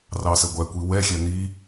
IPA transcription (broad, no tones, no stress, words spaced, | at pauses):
rɑsəɡʷækʷi wɛxʲɛ n̪i